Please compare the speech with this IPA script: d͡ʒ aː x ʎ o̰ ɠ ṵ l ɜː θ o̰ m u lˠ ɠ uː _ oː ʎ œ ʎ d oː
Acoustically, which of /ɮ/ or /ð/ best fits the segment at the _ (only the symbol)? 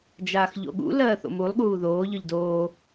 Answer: ð